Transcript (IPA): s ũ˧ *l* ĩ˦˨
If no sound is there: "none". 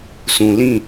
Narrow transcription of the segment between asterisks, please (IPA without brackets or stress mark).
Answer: l